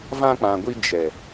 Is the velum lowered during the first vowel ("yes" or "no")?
yes